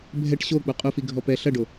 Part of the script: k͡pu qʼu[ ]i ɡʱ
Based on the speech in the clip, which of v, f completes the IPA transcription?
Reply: f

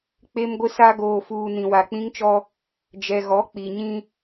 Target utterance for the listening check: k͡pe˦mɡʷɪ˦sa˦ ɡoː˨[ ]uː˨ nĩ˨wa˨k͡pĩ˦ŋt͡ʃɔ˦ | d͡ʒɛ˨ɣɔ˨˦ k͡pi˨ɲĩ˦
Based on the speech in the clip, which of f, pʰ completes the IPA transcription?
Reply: f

